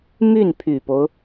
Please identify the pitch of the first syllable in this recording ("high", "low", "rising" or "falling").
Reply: falling